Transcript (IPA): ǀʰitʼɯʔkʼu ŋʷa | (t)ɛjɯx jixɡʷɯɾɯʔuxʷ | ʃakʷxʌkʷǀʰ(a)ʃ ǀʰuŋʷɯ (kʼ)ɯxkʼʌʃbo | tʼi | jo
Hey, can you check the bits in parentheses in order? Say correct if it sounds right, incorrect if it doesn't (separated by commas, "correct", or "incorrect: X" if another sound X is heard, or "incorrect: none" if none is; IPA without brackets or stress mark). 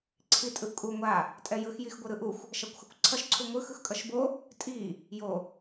incorrect: tʼ, incorrect: ʌ, incorrect: x